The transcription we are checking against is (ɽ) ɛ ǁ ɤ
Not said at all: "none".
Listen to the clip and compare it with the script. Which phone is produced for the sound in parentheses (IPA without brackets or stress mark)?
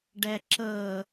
ɖ